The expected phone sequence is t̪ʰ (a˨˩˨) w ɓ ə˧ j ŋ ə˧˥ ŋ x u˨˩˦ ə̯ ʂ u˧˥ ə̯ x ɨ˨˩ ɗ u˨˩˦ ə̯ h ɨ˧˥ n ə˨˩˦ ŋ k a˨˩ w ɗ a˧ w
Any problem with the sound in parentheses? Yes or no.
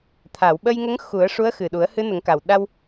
no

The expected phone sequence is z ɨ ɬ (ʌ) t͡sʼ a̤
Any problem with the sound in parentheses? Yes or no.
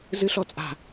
yes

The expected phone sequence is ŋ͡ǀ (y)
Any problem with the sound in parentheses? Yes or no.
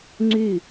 no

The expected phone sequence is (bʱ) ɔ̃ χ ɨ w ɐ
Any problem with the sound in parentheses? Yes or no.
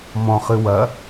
yes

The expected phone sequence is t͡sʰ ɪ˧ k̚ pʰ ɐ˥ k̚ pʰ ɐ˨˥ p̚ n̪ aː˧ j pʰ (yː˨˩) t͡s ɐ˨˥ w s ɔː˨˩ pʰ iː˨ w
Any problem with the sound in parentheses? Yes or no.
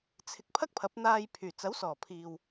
no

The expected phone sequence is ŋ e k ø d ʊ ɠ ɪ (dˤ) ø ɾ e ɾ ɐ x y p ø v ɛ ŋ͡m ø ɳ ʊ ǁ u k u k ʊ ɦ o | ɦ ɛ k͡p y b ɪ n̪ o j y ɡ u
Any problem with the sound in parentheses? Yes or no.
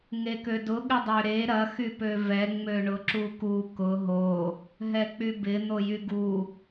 no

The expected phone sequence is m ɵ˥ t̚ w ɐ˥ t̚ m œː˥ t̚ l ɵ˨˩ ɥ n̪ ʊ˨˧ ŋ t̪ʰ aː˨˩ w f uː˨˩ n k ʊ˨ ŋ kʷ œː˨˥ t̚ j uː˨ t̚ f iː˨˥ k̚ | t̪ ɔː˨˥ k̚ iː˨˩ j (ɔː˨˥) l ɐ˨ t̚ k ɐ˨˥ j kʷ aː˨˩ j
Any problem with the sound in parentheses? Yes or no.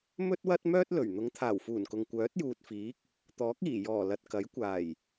yes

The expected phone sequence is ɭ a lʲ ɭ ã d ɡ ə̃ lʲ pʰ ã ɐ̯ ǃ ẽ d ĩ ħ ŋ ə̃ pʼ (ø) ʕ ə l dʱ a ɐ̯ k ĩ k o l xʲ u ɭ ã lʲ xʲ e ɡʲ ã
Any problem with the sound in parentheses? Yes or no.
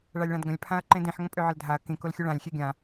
no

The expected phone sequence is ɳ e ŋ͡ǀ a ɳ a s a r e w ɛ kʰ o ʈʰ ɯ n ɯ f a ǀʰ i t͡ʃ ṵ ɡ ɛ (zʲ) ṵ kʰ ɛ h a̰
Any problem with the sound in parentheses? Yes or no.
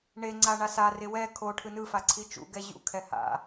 yes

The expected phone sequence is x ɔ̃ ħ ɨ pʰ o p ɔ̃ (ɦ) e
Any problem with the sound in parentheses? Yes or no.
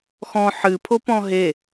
no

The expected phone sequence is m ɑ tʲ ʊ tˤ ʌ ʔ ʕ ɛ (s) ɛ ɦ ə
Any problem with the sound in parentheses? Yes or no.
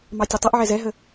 yes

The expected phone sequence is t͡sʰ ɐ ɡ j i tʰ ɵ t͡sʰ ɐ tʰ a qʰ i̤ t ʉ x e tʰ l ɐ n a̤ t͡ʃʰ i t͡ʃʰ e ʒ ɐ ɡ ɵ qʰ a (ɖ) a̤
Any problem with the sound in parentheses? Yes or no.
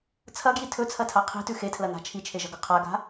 yes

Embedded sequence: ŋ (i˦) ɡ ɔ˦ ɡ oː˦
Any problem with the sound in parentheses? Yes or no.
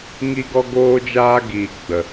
no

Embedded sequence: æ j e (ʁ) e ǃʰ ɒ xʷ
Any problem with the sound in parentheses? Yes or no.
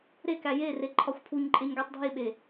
yes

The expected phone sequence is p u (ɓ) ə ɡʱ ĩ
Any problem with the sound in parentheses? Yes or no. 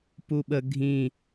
no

